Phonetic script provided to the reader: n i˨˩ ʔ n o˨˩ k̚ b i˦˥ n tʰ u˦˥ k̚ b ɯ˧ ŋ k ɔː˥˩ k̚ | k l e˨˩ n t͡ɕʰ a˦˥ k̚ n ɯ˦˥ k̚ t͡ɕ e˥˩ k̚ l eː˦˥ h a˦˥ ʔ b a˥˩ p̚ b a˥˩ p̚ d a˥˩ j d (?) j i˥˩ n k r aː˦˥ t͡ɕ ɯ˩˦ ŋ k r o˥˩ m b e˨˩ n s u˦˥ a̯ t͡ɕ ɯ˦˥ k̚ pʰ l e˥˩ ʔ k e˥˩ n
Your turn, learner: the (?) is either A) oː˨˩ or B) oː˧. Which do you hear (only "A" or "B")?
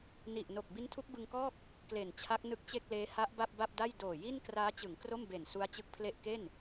A